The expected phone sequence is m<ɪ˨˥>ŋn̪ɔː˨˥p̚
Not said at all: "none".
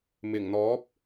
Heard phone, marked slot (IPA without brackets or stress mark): ɪ˨˩